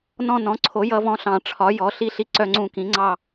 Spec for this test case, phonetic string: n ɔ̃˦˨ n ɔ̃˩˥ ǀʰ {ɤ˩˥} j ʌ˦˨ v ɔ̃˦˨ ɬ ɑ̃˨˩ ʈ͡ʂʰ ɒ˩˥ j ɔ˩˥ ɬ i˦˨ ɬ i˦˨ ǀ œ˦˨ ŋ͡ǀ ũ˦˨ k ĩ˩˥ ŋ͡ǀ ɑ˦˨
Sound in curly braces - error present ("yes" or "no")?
yes